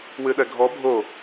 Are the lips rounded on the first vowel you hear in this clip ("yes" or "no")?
no